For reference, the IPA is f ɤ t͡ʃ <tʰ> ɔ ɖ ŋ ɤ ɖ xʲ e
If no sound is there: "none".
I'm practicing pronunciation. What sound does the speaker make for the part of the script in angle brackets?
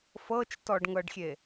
t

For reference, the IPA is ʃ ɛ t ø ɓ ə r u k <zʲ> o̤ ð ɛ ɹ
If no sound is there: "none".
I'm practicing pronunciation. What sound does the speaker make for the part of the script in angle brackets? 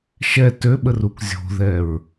zʲ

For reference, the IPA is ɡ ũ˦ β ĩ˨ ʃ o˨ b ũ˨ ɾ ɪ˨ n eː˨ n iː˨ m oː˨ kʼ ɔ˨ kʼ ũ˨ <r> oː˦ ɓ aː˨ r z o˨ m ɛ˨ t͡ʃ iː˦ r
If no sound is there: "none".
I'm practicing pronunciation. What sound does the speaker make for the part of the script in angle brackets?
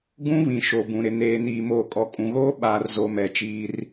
ɣ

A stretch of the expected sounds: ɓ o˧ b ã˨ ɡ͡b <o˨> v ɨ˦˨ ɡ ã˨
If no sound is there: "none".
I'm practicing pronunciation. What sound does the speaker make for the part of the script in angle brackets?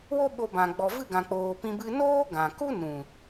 ɔ˨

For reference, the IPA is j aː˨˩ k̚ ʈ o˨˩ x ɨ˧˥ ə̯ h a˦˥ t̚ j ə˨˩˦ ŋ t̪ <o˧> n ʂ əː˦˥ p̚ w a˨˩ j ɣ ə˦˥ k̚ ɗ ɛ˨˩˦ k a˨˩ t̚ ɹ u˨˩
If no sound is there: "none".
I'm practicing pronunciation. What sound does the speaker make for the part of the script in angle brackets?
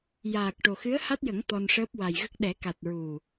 ɔ˧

